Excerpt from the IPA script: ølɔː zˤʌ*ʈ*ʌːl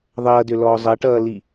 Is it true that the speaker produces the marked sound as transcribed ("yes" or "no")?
yes